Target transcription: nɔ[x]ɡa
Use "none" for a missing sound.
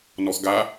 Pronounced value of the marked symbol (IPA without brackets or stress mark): x